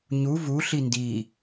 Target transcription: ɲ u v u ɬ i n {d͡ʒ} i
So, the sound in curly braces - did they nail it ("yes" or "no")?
no